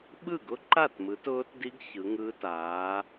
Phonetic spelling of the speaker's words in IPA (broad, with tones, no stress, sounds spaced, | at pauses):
ɓ ɯ˥˩ ɡ ʊ˦˥ ǃ a˥˩ t m ɯ˨˦ t ʊː˦˥ t d i˦˥ ɡ ç ɯ˨˦ ŋ ɯː˦˥ t aː˨˦